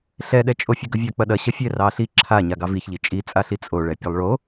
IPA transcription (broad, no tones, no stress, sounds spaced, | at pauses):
ɬ ɛ ɗ ɛ t͡ʃʼ o fʲ ə ɡ ə vʲ a k͡p ɐ ɗ ɐ ɕ ɐ fʲ ɛ r ɑ ɬ i ǁʰ a ɲ a ɡ ɑ v i ç ʎ i t͡ʃʼ i t͡sʼ a ɬ i t͡sʼ o ɭ ɛ pʲ ɐ lˠ ɭ o